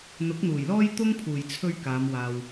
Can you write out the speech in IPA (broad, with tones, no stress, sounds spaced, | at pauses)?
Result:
n̪ ʊ˨˥ k̚ n̪ uː˨˩ j l ɔː˥ j t̪ ʊ˥ ŋ pʰ uː˨˩ j t͡sʰ ɵ˧ ɥ k aː˨˧ m w aː˨ w